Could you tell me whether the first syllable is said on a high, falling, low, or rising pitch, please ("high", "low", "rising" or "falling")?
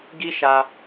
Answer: high